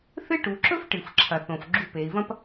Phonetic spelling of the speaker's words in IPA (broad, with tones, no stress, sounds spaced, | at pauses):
θ ɨ˥ ʈ u˩˧ ǁ ɵ˥ f ʈ ɨ˩ f ǁʰ ɐ˩ θ õ˩ f ɡ͡ǁ u˧ p e˩˧ i̯ v ɐ̃˥ p